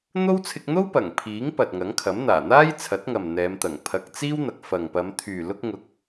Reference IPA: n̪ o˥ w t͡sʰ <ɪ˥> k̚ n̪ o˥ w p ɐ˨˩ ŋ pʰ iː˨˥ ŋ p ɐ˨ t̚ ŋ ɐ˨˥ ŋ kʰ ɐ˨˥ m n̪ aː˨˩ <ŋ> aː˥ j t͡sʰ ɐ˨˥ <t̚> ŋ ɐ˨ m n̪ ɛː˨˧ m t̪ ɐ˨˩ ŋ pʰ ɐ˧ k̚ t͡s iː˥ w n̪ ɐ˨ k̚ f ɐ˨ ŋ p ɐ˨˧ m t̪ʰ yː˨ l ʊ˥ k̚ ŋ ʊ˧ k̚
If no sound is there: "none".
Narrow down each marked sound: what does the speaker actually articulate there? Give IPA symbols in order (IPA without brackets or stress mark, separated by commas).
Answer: ɪ˧, n̪, t̚